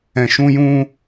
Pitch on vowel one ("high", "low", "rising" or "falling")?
low